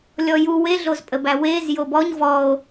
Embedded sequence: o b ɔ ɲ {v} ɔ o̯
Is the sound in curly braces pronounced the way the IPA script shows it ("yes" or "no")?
yes